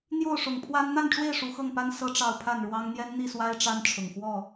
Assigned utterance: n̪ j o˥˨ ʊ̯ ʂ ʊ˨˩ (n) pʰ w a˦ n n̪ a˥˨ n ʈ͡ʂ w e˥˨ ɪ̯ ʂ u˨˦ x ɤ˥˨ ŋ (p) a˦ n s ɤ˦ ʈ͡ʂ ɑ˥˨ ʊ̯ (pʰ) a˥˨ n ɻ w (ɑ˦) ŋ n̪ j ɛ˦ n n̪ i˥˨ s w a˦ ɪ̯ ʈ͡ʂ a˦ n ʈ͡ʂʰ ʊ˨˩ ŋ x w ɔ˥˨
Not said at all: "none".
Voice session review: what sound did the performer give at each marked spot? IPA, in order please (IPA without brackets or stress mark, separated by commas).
ŋ, p, pʰ, ɑ˦